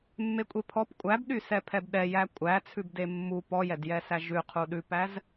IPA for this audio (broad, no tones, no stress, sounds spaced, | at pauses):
mː e kʷʼ e pʰ ɔ p kʷʼ æ b ɗ y s ɛ pʰ ɛ b ɗ ɛ j æ kʷʼ æ t͡sʰ ʉ b d e mː u p ɔ j ɛ d j ɛ s æ ʒ ʉ qʰ u ɗ ʉ p æ z